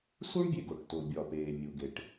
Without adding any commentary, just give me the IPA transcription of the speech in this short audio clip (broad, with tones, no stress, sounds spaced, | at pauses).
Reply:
s u˥ ɳ bʲ e˩ ɡ o˩ ʈ t o˩ bʲ ɒ˩ p eː˩ mʲ u˩ ɡ e˩ ʈ